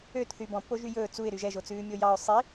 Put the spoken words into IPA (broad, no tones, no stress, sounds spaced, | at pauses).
ø t θ y b ɔ̃ pː o ʒ y j ɵː t͡s u ɪ̯ ɾ y ʒ ɛ ʒ o t͡s ʉː mʲ o j ɑ ʊ̯ sˤ i